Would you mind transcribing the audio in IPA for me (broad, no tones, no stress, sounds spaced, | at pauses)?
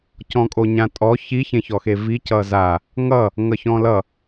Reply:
c ɔ̃ kʼ o ɲ ã tʼ ɔ ç i ç ẽ ç ɔ x e v i c ʌ z a | ŋ ʌ | ŋ ʌ ç ɔ̃ l ʌ